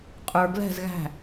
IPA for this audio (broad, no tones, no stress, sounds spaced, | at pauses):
qʼ ə˞ ɡ l ɛ̤ z ɣ æ̤